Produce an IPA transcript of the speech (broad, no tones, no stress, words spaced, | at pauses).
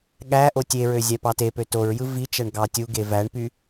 ɠæ ʔotʲeɹø zʲæpɑtepø toɹjɯ vit͡ʃæɳ ɡɑtʲuɡe væɳpy